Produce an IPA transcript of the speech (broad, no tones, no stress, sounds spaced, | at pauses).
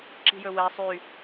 ǁ i̤ j ɵ w ɛ sˤ y